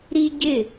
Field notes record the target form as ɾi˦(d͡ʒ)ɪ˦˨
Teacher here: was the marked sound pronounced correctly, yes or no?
no